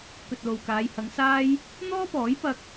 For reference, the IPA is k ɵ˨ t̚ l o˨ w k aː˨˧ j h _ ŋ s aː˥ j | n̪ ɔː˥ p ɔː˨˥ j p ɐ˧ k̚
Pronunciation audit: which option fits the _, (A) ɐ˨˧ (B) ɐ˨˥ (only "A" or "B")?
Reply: A